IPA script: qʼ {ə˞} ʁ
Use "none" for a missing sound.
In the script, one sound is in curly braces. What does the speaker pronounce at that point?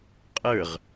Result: ə˞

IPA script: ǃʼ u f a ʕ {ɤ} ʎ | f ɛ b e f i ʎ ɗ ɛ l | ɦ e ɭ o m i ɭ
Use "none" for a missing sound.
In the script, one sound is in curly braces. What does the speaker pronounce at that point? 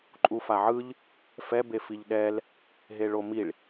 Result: ɯ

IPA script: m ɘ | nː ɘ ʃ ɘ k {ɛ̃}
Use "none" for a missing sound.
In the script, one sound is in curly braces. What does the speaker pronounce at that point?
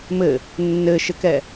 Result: ɛ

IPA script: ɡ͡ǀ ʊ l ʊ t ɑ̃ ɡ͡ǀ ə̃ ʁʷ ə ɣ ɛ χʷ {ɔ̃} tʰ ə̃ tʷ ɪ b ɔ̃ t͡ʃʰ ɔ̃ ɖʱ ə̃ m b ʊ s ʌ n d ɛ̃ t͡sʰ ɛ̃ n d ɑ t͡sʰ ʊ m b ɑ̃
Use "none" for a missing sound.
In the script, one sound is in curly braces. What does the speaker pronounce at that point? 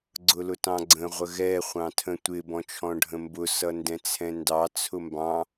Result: ɑ̃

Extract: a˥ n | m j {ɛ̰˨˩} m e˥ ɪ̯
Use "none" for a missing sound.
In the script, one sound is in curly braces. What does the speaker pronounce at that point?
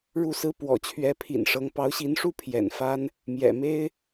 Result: ɛ̰˨˩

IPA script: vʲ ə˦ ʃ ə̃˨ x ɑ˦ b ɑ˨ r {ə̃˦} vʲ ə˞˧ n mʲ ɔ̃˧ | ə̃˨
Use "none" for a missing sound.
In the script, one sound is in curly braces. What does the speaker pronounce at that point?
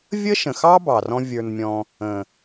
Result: ɔ̃˦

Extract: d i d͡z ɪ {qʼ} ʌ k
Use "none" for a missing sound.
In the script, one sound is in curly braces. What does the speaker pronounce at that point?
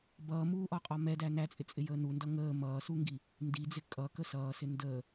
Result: kʼ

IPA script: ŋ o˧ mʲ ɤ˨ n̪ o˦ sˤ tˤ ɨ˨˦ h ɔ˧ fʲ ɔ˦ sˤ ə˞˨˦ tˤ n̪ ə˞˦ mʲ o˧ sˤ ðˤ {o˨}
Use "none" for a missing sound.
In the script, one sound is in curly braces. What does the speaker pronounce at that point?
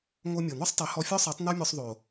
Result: o˨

